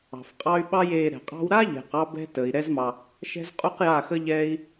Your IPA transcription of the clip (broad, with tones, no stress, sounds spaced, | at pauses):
ɑ̤˨ f qʼ ɑ˦ y̯ ɓ ɑ˦ j eː˧ ɾ ɛ̤˨ qʼ ɑ̤˦ w ɾ a˦ ʎ æ̤˨ q ɑ˧ b ɛ̤˦ t əː˨ i̯ ɾ ɛ˦ z m ɑ˧ | ʃ ɛ̤˦ z qʼ u˦ q j a˦˨ x ə˦ ʎ ɛː˦ i̯